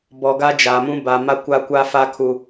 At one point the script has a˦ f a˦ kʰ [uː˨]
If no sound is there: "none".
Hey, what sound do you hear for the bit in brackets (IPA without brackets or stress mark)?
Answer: u˨